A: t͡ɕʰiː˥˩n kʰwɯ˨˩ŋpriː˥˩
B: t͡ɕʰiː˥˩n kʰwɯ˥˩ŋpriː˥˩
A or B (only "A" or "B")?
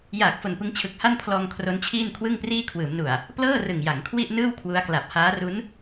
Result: B